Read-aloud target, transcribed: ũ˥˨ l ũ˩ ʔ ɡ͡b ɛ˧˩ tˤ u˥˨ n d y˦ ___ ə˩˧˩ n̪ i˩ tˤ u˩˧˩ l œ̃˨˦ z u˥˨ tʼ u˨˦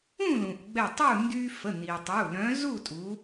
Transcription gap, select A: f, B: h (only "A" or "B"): A